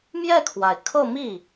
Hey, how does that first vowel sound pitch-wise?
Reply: falling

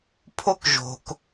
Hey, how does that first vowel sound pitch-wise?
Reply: high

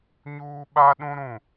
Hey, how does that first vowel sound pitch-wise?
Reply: high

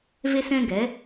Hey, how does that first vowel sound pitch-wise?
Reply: high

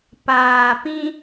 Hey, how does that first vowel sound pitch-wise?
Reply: low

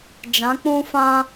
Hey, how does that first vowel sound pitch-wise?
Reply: rising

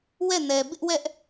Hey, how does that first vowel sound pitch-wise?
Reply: falling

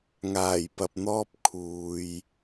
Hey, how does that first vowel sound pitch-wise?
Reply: low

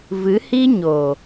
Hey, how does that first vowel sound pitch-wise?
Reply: rising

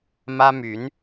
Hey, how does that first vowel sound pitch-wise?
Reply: high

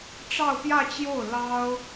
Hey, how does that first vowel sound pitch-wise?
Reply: falling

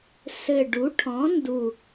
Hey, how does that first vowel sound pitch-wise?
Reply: low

